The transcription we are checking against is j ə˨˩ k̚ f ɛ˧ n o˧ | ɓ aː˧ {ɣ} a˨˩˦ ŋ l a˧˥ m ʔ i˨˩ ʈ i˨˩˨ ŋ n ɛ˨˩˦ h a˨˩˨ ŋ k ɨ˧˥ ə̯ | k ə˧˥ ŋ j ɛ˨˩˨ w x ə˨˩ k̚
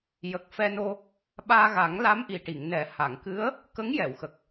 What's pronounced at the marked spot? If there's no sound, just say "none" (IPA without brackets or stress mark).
ɣ